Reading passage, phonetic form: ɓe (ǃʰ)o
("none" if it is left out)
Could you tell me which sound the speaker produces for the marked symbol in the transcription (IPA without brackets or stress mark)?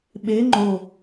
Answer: ŋ͡ǃ